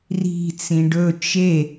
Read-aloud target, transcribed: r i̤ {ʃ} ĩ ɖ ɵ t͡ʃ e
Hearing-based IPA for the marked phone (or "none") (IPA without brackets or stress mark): t͡s